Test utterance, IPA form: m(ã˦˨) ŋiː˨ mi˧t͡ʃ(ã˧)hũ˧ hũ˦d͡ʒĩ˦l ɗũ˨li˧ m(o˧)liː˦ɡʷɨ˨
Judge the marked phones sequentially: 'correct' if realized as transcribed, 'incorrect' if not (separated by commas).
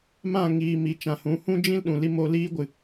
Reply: correct, correct, correct